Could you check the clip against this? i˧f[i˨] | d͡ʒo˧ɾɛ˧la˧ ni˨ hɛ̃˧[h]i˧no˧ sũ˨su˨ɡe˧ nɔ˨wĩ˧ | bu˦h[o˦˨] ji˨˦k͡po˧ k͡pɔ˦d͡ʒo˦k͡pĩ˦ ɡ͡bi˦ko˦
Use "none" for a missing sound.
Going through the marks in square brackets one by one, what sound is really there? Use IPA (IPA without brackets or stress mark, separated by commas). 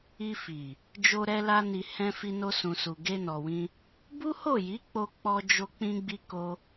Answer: i˨, f, o˦˨